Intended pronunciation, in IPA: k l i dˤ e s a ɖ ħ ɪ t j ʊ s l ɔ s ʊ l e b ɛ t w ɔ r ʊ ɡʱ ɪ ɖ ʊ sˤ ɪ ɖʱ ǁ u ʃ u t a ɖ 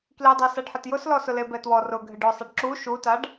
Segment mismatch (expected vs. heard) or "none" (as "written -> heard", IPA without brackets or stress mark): ɖʱ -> ɖ